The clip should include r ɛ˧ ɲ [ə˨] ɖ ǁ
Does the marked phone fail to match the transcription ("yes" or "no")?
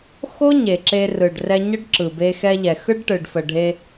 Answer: yes